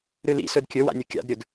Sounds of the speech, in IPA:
ɾ ɨ l ḭ s ɵ d kʲ ɵ w a̰ nʲ o kʲ a̰ d ɾʲ ɵ d

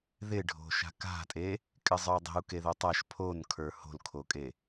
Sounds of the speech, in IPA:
ð ɪ ɖʱ o̤ ʃ a̤ k a̤ tʼ e | kʼ ɪ zˤ ə˞ u̯ dˤ e̤ u̯ k e ð o tˤ a ʃ pʰ o n kʰ ə˞ h o̤ l kʰ o kʼ e

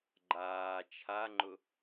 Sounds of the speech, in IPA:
ɡ͡ǃ aː t͡ʃʰ a ŋ͡ǃ ʊ

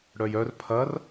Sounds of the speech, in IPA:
ɽ œ j œ r pʰ ɐ r

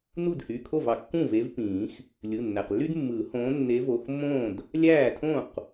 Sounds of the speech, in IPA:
n u˥˩ d h y˩˧˩ kʰ o˥˩ v ɑ˩ kː ũ˥˩ v e˨˦ v p ĩː˨˩˦ x | lʲ ɯ˩˧˩ nː æ˩ q lː y˥ d mː ɯː˨˩˦ h õː˨˦ nː e˨˦ v o˩˧˩ x mː õː˥˩ d | lʲ æː˥˩ tʰ õ˥˩ q

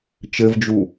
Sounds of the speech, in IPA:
t͡ʃ ɘ v d͡ʒ u

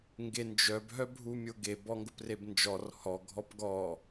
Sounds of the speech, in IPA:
ŋ ɡ e n d͡ʒ œ b ɦ œ bʱ u mʲ ʊ ɡ e b ɔ ŋ ɡ ʊ p r e b n d͡ʒ ɔ r h ɔ ɡʱ ɔ p ɡ ɔ

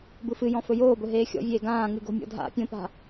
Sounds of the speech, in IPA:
b ɯ f ɨ j ɔ̃ f ɵ j oː b ɵ ɦ eː xʲ ɔ̰ vʲ eː ɡ ãː ŋ ɨ ɡ o̤ mʲ ɔ̰ dʱ a̰ pʲ õ p a̤

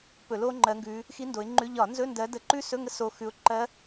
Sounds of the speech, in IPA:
p ɵ˧˩˧ l o˦˥ ŋ͡ǃ ɜ˨˦ ŋ ɡ ʉ˨˦ | x i˦˥ n d o˨˦ ɪ̯ ŋ͡ǃ ʉ˧˥˧ ʎ ɒ˧˩˧ n z ɵ˧˥˧ n d ɜ˨˦ d ə˨˦ ǃ ʉ˦˥ s ɵ˧˥˧ ŋ ə˦˥ s o˨˦ x ʉ˨˦ ʊ̯ ǃ ɜ˦˥

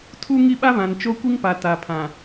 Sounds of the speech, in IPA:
tʰ u˦ ŋ i˦ ɓ a˦ β ã˨ n t͡ʃ o˦ kʷ i˦ ŋ p a˨ t a˨ pʰ ã˨

